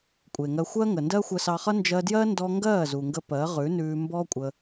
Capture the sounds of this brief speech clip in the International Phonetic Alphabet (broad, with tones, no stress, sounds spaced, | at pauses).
kʷʼ e˨ ŋ ɜ˧ xʷ ɜ˦ ŋ ə˨ n d ɜ˦ xʷ ə˧ s ɑ˧ χ ʌ˦ n d͡ʒ ɜ˧ d j ɜ˦ n d ɔ˦ ŋ ɡ ɜː˦˨ z u˨ ŋ ɡ ə˧ p ɜ˨˦ ʁ ʉ˨˦ n ʉː˧ m b ɔ˦ kʷʼ ə˧